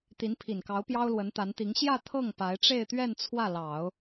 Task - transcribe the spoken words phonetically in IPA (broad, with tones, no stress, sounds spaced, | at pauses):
t̪ i˧˥ n pʰ i˨˩ n k ɑ˧˥ ʊ̯ p j ɑ˥ ʊ̯ l w ə˧˥ n t̪ a˧˥ n t̪ i˧˥ ŋ ɕ j ä˥˧ t̪ʰ ɤ˥˩ ŋ p a˧˥ ɪ̯ ʈ͡ʂ e˥˧ ɪ̯ t̪ ɥ ɛ˥˧ n t͡sʰ w ä˥˩ l ɑ˨˩˦ ʊ̯